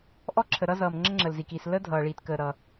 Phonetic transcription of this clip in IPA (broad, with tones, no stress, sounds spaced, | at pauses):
ʔ ɔ˥ ǁʰ ə˩ ɾ ʌ˥ z ʌː˩ m ŋ͡ǁ ə˥ ŋ͡ǁ əː˩ l z i˩ k i˩ s l ə˥ dʱ ʌː˩ ɭ iː˩ t k əː˩ ɾ ʌ˩